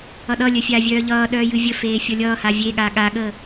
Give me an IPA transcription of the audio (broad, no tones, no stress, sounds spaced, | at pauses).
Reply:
ʌ ɗ ʌ lʲ œ fʲ aː vʲ œː ʎ ʌː ɗ œː j ɨ vʲ ə f eː fʲ ʌ lʲ ʌː h a vʲ e ɠ a ɠ a ɠ əː